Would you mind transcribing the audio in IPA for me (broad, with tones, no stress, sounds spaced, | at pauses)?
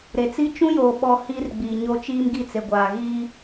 ɾ e˨ t͡s i˦ t͡ʃ ũ˦ j oː˨ ɓ ɔ˦ h iː˦ r ɡ͡b iː˨ ɲ o˦ t͡ʃ iː˦ m ɡ i˦˨ t͡s e˨ ɡʷ aː˨ ɣ i˦